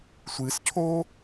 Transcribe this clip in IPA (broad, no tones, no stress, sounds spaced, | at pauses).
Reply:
sʷ ɨ s cʰ o